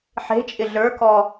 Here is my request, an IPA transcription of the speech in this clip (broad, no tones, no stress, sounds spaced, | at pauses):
ħ e̤ t͡ʃʼ ɪ ɮ ə˞ k ɔ